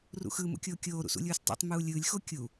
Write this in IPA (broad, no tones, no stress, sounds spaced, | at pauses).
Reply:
r ṵ x ɯ m ṵ kʲ oː kʲ oː ɾ ṵ s ṵ lʲ uː s tˤ o̰ tˤ m uː lʲ ɯː lʲ x o kʲ u